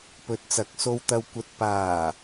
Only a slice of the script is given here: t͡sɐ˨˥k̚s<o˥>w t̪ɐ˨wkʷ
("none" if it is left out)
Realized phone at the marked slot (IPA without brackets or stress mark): o˧